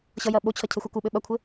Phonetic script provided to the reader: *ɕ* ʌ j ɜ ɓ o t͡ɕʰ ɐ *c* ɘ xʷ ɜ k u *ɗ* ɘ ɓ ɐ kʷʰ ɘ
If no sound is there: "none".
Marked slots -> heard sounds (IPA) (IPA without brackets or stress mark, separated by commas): ɕ, cʰ, ɓ